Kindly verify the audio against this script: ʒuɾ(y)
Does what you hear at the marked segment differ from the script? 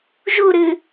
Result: yes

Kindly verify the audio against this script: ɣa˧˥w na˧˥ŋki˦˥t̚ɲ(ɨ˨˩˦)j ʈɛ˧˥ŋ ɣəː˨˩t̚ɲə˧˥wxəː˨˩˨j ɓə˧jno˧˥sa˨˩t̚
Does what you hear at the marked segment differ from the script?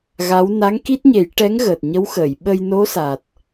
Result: yes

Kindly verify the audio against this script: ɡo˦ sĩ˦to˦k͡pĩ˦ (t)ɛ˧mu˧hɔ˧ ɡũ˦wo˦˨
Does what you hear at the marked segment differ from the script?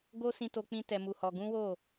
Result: no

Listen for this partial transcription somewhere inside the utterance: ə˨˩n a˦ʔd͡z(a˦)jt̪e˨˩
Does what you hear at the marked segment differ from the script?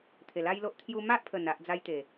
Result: no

